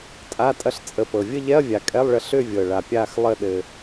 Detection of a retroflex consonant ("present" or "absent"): present